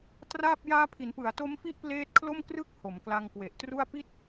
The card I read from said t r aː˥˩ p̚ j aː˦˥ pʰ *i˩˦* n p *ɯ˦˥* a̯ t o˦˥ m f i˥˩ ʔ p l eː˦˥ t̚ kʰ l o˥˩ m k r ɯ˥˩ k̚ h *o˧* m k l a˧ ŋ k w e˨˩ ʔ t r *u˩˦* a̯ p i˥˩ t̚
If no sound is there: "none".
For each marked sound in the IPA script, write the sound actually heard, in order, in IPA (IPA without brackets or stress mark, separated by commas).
i˩˦, ɯ˩˦, o˩˦, u˥˩